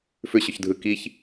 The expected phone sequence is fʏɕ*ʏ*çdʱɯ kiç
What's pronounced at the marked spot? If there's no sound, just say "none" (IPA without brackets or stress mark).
ʏ